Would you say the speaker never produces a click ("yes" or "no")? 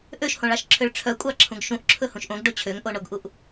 no